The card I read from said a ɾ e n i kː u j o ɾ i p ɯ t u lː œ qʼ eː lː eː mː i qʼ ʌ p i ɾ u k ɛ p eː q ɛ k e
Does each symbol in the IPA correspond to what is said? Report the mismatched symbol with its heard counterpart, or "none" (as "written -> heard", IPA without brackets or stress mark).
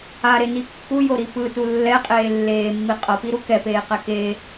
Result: œ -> ɛ